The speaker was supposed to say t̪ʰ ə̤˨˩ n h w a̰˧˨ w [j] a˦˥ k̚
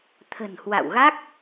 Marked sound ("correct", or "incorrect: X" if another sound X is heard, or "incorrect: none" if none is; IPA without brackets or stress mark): incorrect: ɣ